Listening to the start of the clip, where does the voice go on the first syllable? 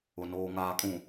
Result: low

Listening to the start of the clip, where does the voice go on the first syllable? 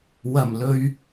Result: low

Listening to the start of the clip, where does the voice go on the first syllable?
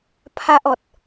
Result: high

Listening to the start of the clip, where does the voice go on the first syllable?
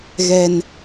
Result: high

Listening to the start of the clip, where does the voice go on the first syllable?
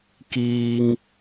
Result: low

